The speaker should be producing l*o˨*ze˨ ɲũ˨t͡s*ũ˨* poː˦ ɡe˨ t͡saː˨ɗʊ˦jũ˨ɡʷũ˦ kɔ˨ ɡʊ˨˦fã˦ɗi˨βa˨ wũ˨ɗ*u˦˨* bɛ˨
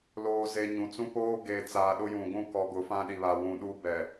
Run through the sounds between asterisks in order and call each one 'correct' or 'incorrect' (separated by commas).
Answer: incorrect, incorrect, incorrect